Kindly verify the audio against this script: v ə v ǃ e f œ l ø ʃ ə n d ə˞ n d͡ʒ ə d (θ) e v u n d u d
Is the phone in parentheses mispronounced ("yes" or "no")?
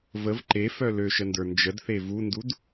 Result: no